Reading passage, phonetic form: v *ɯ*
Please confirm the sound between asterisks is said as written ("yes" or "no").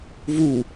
no